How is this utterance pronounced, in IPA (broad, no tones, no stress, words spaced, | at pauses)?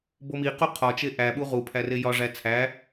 bomi quqʰɒt͡ʃe ʔæɓu ʁu pʰærejɒ ʐæt͡sʰæ